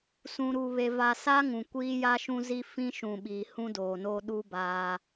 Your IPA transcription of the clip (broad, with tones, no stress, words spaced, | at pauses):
sũ˨ɾu˨βe˨ va˨sa˦ ŋũ˨kʷiː˦ ja˦ʃũ˦ zi˦fĩ˦ʃũ˨ ɓiː˨hũ˦doː˨noː˦ ɗu˦ baː˦